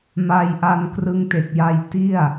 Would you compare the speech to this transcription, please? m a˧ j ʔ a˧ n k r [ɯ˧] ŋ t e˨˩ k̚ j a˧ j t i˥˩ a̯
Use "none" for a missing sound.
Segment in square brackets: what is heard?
ɯ˧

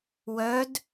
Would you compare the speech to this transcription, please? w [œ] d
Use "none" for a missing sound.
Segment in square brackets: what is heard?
œ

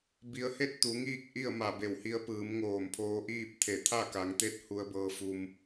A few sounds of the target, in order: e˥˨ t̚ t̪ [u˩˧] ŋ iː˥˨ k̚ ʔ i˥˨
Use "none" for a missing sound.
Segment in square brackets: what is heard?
u˩˧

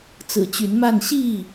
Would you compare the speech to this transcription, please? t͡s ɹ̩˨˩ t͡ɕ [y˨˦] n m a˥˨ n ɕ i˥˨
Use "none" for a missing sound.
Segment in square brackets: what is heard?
y˨˦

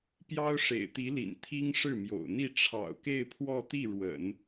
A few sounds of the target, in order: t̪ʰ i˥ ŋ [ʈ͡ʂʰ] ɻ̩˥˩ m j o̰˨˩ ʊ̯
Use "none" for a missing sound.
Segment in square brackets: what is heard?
ʂ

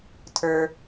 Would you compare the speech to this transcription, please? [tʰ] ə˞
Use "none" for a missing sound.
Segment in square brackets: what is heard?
tʰ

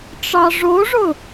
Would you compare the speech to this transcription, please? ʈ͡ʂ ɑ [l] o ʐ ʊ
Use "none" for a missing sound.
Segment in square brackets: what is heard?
ʐ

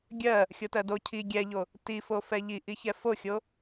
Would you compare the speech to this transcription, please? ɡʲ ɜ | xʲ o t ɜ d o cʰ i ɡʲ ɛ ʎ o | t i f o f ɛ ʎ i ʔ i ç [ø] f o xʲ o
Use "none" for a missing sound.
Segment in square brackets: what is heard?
ɛ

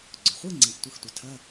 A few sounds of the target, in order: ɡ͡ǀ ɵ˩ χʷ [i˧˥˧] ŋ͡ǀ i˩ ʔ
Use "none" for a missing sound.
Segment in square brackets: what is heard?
i˧˥˧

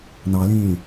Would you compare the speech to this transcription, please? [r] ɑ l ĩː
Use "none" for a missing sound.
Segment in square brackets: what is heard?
n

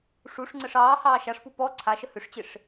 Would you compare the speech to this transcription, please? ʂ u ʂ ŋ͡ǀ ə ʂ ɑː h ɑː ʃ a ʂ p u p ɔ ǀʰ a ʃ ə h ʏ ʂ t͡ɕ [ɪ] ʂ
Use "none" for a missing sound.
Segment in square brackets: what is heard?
ɪ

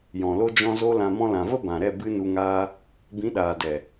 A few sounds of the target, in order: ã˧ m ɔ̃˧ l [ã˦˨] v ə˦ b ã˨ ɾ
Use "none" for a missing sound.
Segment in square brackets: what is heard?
ã˨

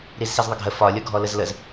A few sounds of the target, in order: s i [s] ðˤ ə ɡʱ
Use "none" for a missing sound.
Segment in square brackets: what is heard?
z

